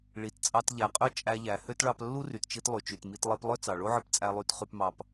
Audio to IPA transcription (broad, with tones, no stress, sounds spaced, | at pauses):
ɭ i˩ t t͡sʼ ɑ˧ t ʎ æ˩ qʼ ø˥ t͡ʃʼ æ˧ ʎ æ˩ h ø˥ t ɭ ɑ˧ p lː u˥ r y˩ t t͡ʃ i˧ t lˠ y˩ t͡ʃ y˩ t m i˧ t lˠ i˧ p lˠ ø˥ t͡s ɑ˩ ɭ o˥ ʕ ɯ˧ p t͡sʼ æ˧ lˠ y˧ t χ y˧ p m ɑ˧ p